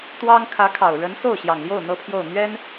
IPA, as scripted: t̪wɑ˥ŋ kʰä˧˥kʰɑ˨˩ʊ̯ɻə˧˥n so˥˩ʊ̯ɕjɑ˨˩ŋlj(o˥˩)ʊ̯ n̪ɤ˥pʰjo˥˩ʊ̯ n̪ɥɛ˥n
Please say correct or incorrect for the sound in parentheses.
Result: correct